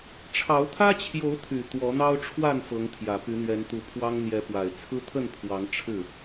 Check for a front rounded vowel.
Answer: present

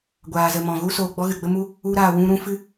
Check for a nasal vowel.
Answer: present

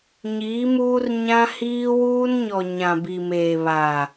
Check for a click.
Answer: absent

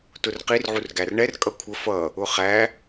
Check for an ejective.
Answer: present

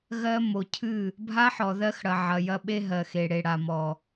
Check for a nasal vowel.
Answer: absent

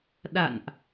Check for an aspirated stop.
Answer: absent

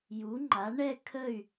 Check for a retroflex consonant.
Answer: present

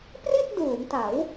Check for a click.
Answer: absent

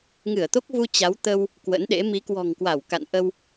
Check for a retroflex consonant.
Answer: absent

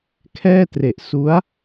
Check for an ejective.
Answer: absent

